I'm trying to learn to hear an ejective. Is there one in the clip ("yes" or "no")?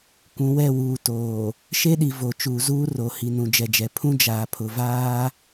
no